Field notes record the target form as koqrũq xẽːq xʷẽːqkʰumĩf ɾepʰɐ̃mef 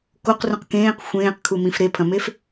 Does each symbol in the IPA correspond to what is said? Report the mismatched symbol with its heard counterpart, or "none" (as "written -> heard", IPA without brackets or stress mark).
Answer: x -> k